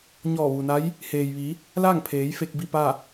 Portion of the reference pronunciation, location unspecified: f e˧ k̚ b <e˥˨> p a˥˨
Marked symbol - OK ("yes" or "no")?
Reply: no